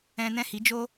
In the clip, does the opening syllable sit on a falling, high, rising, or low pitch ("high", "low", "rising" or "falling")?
high